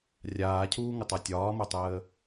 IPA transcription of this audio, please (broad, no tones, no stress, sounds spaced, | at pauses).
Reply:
rʲ aː cʰ uː ŋ ə tˤ a tʲ ɒː m o tˤ əː